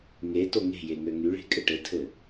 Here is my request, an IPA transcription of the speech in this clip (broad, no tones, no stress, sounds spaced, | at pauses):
ŋ e t o ŋ e̤ j e ŋ ø ŋ y ɭ e̤ kʼ ɘ ʈ ɘ tʰ ɘ